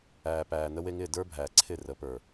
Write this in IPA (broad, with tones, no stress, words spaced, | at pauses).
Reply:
æː˨pæː˨ nə˧we˧ŋɪː˦˨ də˞˦ bʱæː˨ ǀʰɪ˦˨ rə˨˦pə˞˨